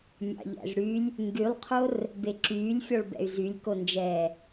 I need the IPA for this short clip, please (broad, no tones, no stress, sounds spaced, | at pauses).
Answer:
mʲ ɑ̰ ʎ æ̰ z ɽ y lʲ | ŋ ɡ y lˠ qʰ o r | b e ǁ yː lʲ fʲ ɔ ɭ b ɛ̰ y̯ z y lʲ k o n d͡ʒ ɛː